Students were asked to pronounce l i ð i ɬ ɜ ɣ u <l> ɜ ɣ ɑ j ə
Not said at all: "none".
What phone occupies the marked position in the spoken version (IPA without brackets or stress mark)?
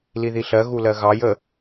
l